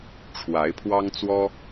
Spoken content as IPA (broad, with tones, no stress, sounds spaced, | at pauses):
ʈ͡ʂʰ w a˨˦ ɪ̯ pʰ w ɑ˦ ŋ t͡s w ɔ˦